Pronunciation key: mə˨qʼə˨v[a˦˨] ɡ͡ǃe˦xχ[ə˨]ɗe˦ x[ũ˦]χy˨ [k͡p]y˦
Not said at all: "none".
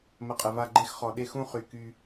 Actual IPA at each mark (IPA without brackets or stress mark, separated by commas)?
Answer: a˦˨, ɔ˨, ũ˦, k